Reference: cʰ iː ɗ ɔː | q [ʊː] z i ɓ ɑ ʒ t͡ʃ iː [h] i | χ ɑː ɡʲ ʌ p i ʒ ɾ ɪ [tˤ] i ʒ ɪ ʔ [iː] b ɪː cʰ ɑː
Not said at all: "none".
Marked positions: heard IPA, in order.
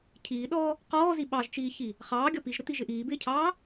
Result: ɔː, ç, t̪, iː

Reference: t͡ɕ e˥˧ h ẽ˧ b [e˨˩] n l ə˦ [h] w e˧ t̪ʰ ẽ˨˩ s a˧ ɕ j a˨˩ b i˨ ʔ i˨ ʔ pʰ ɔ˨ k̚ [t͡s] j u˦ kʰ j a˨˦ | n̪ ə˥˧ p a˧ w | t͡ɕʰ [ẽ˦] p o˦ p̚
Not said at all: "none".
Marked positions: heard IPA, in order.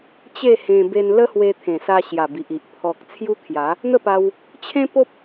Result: e˧, h, t͡sʰ, ẽ˦

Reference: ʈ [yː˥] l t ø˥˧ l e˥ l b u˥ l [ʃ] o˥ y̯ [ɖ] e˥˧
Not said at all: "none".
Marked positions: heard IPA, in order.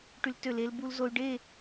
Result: y˥, z, ɖ

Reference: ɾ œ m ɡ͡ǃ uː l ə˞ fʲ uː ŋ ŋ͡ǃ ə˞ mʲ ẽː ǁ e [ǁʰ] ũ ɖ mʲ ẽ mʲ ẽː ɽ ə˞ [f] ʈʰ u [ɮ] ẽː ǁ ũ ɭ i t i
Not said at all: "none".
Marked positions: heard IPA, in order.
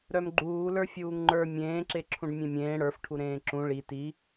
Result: ǁʰ, f, ɾ

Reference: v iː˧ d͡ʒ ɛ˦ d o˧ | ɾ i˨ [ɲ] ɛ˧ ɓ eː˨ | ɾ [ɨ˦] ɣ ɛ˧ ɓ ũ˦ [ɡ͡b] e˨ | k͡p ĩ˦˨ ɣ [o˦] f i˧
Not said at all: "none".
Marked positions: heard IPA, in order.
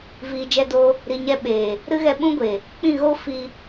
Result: ɲ, ɨ˦, ɡʷ, o˦

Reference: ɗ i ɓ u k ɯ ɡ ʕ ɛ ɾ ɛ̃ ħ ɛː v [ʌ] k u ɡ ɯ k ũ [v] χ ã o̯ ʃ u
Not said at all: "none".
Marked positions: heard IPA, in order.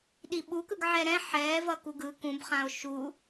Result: ʌ, b

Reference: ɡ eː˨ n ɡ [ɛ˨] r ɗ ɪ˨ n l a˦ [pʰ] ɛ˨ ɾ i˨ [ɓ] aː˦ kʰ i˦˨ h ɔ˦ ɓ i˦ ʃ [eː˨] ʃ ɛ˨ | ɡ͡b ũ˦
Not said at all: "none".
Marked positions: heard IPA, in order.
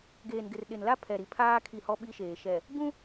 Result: ɪ˨, pʰ, pʰ, eː˨

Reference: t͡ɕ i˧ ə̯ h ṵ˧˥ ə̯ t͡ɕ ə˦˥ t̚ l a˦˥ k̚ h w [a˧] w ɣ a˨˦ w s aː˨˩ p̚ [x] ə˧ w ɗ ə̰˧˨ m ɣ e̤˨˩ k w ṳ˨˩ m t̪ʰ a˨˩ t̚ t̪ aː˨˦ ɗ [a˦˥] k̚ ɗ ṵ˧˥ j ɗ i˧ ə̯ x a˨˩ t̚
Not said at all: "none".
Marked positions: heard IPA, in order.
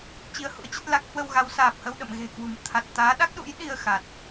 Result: ə˧, h, a˦˥

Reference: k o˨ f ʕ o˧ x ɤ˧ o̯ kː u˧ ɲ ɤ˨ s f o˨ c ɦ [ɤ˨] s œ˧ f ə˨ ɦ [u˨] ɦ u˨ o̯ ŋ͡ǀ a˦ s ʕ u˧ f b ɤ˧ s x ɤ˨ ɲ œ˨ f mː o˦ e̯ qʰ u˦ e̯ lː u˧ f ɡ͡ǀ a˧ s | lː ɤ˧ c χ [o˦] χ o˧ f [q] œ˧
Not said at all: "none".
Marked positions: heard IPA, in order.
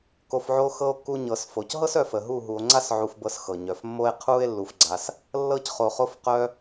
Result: ɤ˦, u˦˨, o˨, q

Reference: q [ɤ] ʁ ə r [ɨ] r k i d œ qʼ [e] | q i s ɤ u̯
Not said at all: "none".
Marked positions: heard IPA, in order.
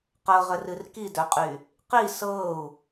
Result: ɤ, ɨ, y

